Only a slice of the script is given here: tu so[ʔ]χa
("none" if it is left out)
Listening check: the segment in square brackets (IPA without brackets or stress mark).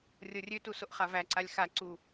ʔ